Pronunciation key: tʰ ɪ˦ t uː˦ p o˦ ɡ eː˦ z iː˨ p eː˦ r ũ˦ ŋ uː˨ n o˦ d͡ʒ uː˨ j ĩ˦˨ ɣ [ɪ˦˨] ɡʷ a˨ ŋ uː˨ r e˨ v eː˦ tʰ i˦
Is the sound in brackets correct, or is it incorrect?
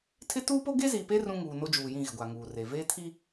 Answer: incorrect